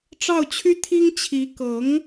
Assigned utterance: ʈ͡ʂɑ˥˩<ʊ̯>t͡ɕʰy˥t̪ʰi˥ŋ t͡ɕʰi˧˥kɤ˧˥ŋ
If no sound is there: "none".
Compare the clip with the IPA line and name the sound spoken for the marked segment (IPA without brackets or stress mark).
ʊ̯